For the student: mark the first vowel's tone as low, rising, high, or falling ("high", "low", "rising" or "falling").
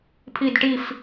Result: falling